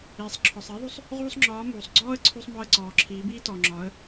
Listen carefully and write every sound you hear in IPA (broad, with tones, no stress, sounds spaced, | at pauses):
iː˩ sˤ ǁʰ ɔ˩ sˤ iː˧˥ ðˤ u˧˥ sˤ | ʁ uː˥ sˤ ŋ͡ǁ ɒː˧˥ m uː˩ sˤ ɡ͡ǀ ɔː˥ ə̯ ǀʰ u˧ sˤ m ɔ˧ ə̯ ǀ ɔː˩ ǁʰ iː˩˧ b iː˥ t ɔ˩ ŋ͡ǁ ɒː˩˧ ə̯